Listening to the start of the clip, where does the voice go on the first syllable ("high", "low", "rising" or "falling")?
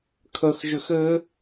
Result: high